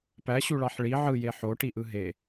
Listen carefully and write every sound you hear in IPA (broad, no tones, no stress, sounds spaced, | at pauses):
p æ ɕ u ɭ ɑ ħ ɭ i ʕ ɯ j e ħ o ʈ i ʔ ɯ ɦ e